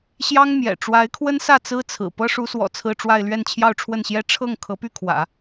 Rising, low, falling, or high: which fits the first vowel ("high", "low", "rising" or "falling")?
high